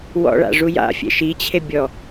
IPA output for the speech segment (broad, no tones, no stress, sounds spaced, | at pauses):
w ɔ̰ ɭ a̰ ʐ u j a̰ fʲ ɛ̰ ʃ i t͡ɕʰ e bʲ ɔ